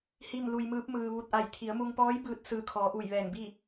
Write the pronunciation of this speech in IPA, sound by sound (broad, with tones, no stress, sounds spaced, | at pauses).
h i˥˨ m l u˧ j m ɯː˧˥ p̚ m ɯː˧ ʋ u˧˩ t̚ ʔ a˧˩ j t̪ʰ i˩˧ ə̯ m u˧ ŋ p ɔː˧˥ j b ɯː˧ t̚ s ɯː˧˩ kʰ ɔː˩˧ ʔ uː˧˩ j ʋ ɛː˧˩ ŋ b i˥˨